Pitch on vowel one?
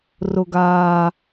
low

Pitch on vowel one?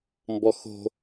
low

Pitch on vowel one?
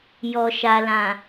low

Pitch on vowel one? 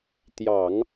low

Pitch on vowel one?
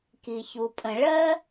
low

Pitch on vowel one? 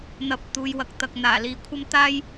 low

